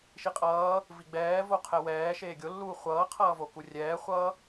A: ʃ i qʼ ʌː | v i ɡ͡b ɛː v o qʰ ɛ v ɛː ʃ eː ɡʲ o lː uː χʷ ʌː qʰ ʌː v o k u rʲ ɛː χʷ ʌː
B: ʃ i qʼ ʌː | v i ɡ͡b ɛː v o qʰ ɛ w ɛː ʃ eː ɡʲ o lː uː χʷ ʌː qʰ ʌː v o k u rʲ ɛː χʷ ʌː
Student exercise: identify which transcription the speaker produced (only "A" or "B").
B